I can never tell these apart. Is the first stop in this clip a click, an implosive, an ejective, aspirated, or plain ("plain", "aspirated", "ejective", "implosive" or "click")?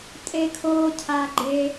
ejective